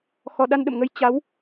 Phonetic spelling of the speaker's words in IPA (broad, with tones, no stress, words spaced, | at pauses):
xɔ˧ ɗa˧nɗə̰˧˨mŋə˧j t͡ɕa˨˦w